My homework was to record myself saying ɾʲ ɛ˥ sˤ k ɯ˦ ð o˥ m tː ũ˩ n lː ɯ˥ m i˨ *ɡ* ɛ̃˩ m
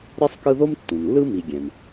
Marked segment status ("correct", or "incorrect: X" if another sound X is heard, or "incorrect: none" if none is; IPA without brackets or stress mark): incorrect: ɡʲ